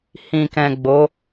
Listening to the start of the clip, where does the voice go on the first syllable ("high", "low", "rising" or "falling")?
low